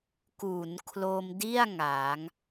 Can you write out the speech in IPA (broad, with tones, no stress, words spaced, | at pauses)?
ku˩˦nkʰlo˧mdi˥˩a̯ ŋa˩˦ŋ